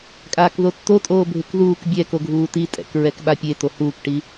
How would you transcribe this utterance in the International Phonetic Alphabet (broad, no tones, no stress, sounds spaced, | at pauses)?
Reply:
kʼ aː k ð o tː o tʼ oː bʱ ɪ k ð uː k bʲ ɛː k o ɡʱ uː t i tʼ ɛ̰ k ɹ ɛ k ɓ a pʲ e t o h uː k ʈ i